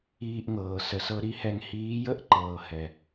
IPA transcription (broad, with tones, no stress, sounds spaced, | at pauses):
iː˧ ʔ ŋ ɤː˨ s ə˨ s ɤ˧ ɾ i˦ h ɛ˧ ŋ h iː˨˦ j ə˦ ʔ ǃ ɤː˨ h ɛ˨